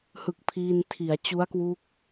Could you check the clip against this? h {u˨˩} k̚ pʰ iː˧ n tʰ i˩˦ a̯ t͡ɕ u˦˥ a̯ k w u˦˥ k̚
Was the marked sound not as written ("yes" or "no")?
yes